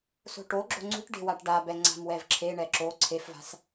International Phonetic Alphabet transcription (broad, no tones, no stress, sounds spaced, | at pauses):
s o̤ ʈ o ɡ͡ǁ o̤ ŋ͡ǀ ṳ ʈ ɖ e̤ w a ʈ ɖ a b ɛ ŋ͡ǀ a̤ m w ɛ v ǁʰ e ɳ ɛ ǁ o ǀʰ e f v a̤ s